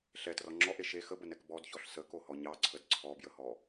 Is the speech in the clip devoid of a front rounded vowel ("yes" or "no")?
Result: yes